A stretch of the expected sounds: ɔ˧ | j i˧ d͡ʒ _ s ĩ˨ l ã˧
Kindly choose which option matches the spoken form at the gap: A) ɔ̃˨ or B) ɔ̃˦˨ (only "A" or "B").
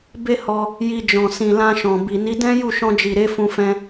A